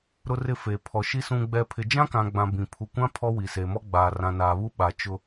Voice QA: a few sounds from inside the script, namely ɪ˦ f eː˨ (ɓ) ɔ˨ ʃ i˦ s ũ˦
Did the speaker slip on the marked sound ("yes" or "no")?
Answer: yes